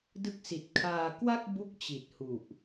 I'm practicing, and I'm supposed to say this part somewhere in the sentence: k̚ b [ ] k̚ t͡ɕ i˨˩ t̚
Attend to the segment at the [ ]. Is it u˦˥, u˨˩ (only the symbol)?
u˦˥